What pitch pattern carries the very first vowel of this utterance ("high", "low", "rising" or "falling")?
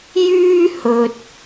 high